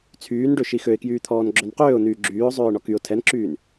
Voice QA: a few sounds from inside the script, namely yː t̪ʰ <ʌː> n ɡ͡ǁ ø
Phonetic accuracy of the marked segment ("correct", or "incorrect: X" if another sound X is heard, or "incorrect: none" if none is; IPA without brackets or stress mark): incorrect: ɔː